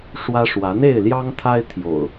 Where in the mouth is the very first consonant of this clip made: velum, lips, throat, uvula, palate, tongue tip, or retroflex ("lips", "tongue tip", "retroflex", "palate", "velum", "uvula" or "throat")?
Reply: retroflex